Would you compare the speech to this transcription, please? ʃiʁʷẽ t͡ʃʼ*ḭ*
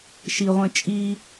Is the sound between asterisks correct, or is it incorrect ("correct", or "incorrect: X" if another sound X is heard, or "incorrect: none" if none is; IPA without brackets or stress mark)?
incorrect: i